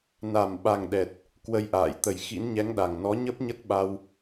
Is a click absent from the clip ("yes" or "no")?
yes